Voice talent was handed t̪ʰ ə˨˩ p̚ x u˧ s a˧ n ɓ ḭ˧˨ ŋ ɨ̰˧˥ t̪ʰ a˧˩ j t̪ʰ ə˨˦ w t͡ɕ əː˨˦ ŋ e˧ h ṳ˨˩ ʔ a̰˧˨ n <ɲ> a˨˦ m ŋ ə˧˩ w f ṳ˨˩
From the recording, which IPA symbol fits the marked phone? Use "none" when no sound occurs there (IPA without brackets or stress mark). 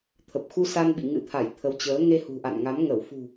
ŋ